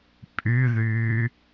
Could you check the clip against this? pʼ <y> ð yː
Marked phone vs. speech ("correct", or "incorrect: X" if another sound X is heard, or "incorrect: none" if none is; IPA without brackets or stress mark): correct